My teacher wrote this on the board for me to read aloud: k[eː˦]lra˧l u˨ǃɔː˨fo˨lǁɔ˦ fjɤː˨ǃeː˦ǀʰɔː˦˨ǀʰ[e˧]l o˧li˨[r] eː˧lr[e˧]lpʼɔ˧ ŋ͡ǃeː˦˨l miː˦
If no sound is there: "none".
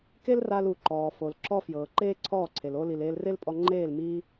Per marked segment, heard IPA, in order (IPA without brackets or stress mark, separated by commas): e˦, e˨, l, e˦